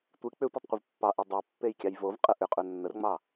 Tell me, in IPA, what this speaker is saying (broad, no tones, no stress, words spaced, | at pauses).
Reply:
tʷɨ k͡pʏ tʷetˤqʷəvpːɑʔe dˤopːej kʲɑjvovqʼə ʔʏqʼɵ nːərŋ͡mɑ